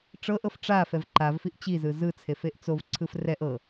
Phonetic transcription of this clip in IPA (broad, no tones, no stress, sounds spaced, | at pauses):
ʈ͡ʂ ɤ ʔ ɤ f ʈ͡ʂ a f ɛ v ǃ a v f i ʔ t͡ɕ i z ɯ z ɯ t͡sʰ e f e ʔ t͡s o v ǀʰ ɯ f r ɛ ʔ ɤ